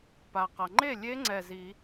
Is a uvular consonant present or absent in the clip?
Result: present